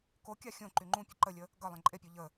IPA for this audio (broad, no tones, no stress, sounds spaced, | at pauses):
k o kʲ a xʲ õ ǃ y ŋ͡ǃ ũ pʲ ə ǃ ə lʲ ə | ɡ ʌ lˠ ẽ ǃʼ e pʲ o ʎ ə